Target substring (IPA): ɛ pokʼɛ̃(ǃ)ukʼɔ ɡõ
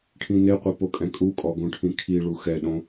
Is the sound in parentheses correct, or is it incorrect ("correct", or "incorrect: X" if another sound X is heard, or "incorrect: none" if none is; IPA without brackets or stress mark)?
incorrect: kʼ